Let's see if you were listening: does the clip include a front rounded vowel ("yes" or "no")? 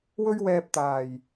no